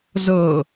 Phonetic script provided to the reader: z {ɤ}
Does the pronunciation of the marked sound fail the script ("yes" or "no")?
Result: no